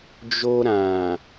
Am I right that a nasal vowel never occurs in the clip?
no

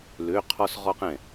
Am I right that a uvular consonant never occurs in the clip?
no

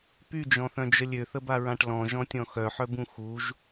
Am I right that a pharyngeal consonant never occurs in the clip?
no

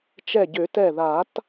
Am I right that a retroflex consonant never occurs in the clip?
yes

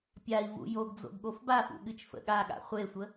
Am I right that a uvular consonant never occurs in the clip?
no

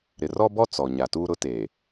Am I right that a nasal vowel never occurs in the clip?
yes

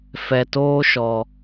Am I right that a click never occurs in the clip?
yes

